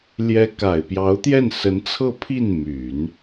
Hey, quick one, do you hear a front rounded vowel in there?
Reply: yes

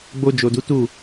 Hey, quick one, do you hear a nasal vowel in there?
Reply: no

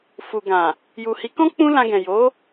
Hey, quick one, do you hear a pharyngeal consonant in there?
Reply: no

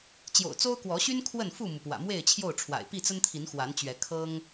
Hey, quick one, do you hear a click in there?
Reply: no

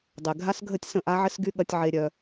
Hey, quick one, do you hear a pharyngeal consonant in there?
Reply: yes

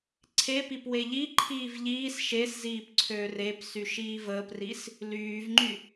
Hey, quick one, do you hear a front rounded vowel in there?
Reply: yes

